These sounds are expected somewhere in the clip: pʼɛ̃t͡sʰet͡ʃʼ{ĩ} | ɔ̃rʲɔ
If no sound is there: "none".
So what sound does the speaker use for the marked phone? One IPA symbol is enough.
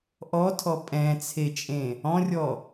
ẽ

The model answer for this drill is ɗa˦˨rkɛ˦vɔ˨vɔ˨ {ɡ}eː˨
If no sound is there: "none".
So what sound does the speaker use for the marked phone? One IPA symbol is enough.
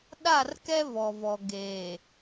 ɡ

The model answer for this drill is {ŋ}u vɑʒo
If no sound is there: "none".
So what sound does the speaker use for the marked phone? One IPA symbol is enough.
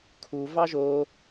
kʰ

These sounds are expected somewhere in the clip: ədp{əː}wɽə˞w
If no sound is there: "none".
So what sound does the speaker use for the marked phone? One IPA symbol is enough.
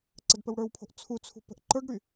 ə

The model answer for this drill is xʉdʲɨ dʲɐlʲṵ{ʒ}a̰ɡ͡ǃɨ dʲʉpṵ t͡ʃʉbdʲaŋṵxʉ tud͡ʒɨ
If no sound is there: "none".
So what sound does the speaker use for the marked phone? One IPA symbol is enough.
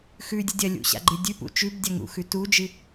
ɕ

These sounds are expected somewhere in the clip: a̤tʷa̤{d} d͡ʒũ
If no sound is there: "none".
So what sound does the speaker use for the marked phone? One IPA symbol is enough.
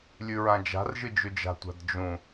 d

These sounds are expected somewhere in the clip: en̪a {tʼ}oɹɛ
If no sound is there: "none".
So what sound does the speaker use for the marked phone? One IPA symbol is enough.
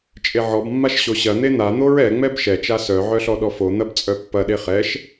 n̪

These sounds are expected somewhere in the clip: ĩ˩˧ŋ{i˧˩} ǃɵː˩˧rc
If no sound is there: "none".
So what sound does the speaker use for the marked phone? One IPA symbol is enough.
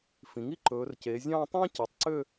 i˥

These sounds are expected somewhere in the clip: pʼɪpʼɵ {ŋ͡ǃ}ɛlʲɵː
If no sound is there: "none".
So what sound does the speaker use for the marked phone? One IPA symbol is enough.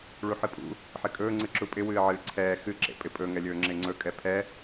ŋ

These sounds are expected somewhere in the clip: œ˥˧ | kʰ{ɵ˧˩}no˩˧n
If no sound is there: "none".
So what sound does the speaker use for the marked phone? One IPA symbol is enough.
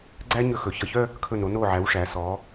ɵ˧˩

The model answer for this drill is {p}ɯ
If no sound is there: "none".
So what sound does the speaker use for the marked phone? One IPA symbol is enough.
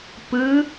p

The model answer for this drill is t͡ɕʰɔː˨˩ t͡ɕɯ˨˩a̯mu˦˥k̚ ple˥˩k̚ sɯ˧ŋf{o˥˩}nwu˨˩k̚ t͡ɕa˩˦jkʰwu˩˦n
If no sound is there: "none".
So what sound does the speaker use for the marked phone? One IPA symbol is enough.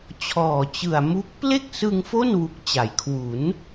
o˥˩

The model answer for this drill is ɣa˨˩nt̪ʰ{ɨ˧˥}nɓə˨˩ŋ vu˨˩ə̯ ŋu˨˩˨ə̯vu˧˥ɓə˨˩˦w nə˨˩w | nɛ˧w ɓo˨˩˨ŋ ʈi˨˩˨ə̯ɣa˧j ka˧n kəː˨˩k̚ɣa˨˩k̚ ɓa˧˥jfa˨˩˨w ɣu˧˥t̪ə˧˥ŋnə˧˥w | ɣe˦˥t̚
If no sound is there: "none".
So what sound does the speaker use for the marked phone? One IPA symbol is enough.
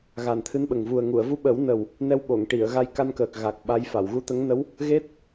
ɨ˧˥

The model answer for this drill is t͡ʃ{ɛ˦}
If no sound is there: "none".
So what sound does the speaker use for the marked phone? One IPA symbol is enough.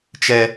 ɛ˦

